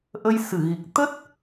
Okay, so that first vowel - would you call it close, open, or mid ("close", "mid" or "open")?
mid